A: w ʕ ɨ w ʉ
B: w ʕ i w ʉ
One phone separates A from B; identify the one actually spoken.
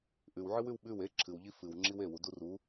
A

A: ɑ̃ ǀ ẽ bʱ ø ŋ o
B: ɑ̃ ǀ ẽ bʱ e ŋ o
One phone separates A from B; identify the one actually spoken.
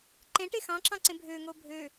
A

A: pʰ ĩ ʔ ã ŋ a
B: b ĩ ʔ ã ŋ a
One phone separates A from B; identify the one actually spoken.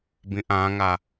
B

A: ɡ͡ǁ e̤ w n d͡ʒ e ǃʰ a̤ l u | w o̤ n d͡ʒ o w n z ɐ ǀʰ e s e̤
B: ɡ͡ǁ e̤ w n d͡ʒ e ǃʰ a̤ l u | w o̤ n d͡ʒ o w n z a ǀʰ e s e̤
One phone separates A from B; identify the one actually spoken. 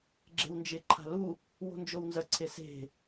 A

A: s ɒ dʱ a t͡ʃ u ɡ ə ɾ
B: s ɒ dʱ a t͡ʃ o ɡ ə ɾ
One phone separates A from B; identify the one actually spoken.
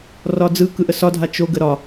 B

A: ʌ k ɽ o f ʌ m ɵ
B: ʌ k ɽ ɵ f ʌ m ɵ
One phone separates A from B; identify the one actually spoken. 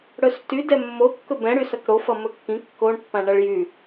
A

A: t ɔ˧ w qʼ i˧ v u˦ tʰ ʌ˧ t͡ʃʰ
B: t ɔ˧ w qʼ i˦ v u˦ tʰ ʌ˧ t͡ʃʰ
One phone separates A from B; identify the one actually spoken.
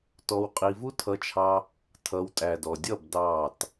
A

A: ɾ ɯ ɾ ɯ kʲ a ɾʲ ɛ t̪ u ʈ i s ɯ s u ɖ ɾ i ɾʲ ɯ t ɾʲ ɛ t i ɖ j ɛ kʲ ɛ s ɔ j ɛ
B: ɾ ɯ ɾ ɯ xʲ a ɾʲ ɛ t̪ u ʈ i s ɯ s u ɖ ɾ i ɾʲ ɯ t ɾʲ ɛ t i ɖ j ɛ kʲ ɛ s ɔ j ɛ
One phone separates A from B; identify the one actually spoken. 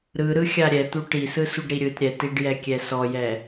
B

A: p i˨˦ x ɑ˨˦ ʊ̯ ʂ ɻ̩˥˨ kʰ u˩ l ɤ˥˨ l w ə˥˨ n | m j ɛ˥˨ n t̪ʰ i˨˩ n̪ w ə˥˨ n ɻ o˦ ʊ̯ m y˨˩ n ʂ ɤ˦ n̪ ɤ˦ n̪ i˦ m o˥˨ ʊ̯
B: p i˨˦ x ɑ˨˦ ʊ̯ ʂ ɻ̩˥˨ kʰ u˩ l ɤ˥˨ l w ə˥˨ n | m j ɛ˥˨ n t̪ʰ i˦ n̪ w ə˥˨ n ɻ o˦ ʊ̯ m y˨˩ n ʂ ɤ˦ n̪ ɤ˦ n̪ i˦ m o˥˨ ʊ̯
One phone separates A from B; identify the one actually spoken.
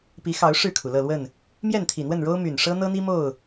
A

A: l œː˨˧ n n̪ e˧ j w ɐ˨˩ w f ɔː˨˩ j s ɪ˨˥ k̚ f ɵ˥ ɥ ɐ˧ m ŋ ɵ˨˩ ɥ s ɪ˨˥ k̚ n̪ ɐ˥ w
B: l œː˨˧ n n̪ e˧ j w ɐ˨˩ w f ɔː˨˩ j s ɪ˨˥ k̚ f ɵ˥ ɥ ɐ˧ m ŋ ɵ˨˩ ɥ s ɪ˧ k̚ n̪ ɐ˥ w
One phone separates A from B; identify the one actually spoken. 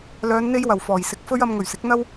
A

